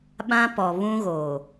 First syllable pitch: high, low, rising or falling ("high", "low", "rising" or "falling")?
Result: high